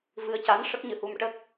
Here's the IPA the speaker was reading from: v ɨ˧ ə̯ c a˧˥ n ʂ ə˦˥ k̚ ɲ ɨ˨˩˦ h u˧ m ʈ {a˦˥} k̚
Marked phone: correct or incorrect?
incorrect